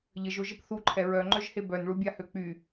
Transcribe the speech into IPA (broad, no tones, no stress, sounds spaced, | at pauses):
ʎ ə ʒ o ʒ ə p θ u ǃʰ ɛ ɹ œ ŋ͡ǃ œ ʒ h e b œ n ɭ u bʲ a h ø k͡p y